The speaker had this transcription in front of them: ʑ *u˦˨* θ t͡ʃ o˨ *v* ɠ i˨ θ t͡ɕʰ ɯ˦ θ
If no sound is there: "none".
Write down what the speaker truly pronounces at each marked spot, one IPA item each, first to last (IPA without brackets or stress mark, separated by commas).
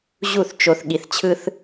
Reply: u˦˨, θ